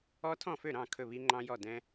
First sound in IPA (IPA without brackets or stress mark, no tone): ɔ